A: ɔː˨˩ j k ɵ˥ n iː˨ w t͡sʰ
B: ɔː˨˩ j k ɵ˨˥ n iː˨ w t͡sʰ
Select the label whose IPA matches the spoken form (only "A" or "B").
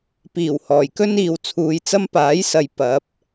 A